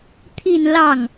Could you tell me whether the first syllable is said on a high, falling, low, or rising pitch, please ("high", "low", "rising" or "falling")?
falling